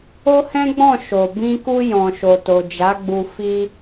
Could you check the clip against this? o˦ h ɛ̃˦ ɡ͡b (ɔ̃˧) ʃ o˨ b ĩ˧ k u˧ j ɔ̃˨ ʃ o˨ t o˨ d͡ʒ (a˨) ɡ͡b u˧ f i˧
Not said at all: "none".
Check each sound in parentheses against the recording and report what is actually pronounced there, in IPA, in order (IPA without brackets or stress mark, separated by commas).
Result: ɔ̃˦˨, a˨˦